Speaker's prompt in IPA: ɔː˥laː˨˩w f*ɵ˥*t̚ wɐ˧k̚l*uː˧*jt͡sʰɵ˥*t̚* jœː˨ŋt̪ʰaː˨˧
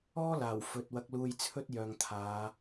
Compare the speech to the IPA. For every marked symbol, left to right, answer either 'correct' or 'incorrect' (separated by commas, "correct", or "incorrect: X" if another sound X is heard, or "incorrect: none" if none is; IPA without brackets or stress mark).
incorrect: ɵ˨, correct, correct